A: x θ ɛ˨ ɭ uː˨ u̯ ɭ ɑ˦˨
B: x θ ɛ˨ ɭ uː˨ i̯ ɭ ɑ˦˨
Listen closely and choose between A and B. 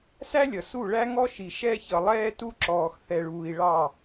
B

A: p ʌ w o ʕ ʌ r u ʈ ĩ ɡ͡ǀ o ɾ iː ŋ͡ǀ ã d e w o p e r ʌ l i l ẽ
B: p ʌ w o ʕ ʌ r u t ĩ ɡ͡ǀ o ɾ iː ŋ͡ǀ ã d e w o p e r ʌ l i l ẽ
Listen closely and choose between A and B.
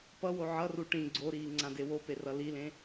A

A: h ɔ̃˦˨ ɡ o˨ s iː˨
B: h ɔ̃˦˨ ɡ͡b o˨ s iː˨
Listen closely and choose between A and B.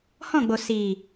B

